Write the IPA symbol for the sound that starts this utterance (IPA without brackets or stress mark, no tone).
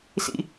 s